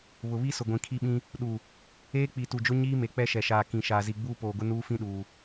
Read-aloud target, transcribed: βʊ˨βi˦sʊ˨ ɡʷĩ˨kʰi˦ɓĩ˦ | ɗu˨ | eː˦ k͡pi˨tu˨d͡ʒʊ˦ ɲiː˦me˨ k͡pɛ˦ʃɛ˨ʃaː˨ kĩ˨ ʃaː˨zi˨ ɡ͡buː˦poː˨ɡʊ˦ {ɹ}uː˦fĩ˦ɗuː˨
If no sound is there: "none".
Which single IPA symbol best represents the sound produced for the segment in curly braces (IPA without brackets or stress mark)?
n